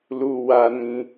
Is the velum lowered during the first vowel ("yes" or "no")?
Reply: no